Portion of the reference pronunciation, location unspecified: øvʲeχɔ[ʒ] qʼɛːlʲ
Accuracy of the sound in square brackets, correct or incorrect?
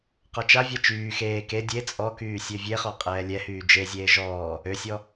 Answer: incorrect